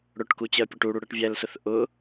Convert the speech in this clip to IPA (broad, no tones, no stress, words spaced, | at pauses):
ɽʊʈku t͡ɕɜpʲɔʈuɽu ɽɜʈvʲælsʊθ ʔʊ